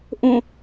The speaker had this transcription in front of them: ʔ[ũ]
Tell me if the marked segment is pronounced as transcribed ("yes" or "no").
no